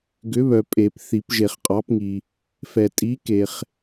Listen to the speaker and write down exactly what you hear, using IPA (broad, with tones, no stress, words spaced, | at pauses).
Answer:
ɡʏ˨˥βœ˨pʼe˨˩˦p θi˨˩˦pʒe˨χqʼɑ˨˥pŋi˨ | fɛ˨tʼi˨˥ke˨χ